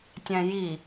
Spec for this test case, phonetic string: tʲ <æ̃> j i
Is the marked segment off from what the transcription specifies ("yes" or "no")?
no